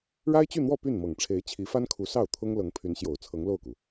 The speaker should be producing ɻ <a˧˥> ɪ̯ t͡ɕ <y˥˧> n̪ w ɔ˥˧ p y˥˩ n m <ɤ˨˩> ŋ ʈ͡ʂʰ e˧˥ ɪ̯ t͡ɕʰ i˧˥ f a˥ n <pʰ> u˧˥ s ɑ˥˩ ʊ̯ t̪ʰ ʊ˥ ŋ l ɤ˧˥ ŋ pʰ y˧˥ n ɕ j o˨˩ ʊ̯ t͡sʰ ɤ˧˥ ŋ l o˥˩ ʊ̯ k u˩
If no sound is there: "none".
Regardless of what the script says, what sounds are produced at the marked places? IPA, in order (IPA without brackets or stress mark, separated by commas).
a˥, y˥˧, ɤ˨˩, kʰ